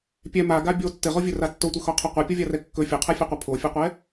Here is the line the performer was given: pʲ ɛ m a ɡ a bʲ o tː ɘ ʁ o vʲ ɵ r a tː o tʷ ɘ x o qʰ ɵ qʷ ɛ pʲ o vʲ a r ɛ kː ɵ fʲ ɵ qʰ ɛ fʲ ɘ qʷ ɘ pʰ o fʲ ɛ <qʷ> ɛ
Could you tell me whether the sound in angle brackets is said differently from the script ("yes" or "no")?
no